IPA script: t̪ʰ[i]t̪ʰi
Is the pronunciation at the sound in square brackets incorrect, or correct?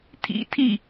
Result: incorrect: ḭ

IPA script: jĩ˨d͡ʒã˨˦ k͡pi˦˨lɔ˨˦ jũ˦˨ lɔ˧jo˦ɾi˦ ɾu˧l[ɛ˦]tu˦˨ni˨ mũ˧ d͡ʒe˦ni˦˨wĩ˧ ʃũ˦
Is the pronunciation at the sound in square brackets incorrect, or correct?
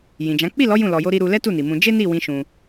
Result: correct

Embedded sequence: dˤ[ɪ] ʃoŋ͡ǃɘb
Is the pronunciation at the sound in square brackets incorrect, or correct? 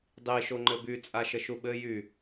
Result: incorrect: i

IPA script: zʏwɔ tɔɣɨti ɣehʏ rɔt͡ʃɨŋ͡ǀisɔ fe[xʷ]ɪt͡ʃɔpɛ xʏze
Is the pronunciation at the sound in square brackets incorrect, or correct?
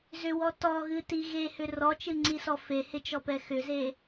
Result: incorrect: h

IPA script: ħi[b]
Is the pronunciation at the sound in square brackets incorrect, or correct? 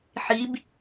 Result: correct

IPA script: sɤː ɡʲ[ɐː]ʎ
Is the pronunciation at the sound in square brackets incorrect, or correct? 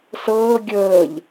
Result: incorrect: əː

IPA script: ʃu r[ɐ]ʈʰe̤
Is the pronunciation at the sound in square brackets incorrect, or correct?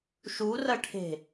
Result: correct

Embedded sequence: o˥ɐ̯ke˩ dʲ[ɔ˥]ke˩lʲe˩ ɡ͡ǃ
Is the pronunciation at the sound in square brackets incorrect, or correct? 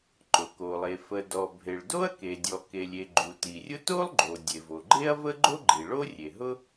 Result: incorrect: ɔ˩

